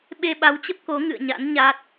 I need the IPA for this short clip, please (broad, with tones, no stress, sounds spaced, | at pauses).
ɓ e˧ ɓ a˨˦ w t͡ɕ ə˦˥ p̚ k o˨˦ ŋ ɨ̰˧˨ ə̯ ɲ a̰˧˥ n ɲ a˦˥ t̚